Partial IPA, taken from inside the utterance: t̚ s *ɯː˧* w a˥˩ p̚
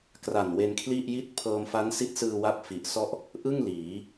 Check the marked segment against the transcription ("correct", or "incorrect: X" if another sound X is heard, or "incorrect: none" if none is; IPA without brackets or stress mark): correct